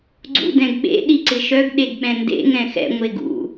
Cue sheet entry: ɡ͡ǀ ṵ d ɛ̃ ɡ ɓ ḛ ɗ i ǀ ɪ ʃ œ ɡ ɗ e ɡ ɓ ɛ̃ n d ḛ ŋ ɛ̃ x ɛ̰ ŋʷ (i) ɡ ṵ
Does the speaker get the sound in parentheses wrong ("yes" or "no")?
yes